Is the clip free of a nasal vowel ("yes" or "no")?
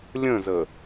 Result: no